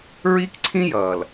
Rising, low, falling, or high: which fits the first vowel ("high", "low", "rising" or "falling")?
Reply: high